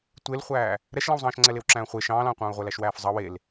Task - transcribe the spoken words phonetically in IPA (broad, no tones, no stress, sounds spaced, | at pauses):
tʷ e l χʷ æː | ɾ ɛ ʃ l ɑ̃ w zˤ ɑ̃ː ʃ ŋ͡ǀ ɛ l e w ǁ æ̃ː χʷ e ʃ ɑ̃ː l ɑ̃ː qʷ ɑ̃ː u̯ ʁʷ ɛ l æ ʃ w æː f zˤ ɑ w e l